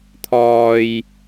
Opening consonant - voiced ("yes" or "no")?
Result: no